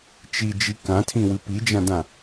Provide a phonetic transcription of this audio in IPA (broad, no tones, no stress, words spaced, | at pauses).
t͡ʃid͡ʒi kãtʰĩwɨ pid͡ʒãdã